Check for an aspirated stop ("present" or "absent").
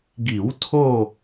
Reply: present